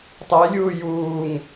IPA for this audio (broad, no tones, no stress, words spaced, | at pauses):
tˤɛjlʲuː juːŋ